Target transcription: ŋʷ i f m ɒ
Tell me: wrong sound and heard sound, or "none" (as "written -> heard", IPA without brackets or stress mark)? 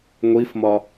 none